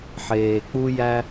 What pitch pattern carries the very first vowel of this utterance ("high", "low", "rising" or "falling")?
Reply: low